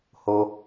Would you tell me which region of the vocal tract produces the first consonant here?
throat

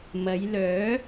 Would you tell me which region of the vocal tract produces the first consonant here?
lips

